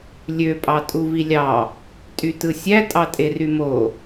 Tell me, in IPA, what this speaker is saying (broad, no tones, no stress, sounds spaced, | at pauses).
lʲ ø pʼ ɑ tʼ u v i lʲ ɑ | tʼ y t ɯ sʲ æ tʼ ɑ tʼ e r y m o